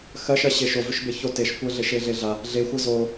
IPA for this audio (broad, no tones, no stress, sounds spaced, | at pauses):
x ɜ ʃ ɜ ɕ e ʃ o v ʏ ʃ b e ç o t e ʃ kʷ ɜ ɮ e ʃ e ɮ e ɮ a | ɮ e xʷ ɜ z o